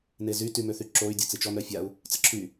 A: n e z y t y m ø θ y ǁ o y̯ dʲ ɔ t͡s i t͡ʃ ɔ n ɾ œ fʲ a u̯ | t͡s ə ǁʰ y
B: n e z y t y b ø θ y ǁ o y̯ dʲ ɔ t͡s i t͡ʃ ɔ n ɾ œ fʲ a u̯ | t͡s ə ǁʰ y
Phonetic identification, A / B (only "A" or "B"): A